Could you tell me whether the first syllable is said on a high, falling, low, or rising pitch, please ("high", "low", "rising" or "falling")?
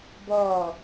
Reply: falling